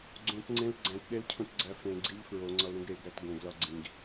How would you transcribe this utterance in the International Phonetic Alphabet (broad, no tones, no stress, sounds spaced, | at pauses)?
ɡ͡ǀ ũ t ŋ͡ǀ ẽ l ɡ͡ǀ æ̃ t ɗ e l cʰ ũ t ɡ͡ǀ æ f ẽ ɡ͡ǀ i ʎ f ɹ o ŋ͡ǀ ɒ l ɾ ũ ɡ ɾ e ɡ ɾ æ t ɡ õ ɡ l ɒ ɡ͡ǀ ĩ ɡ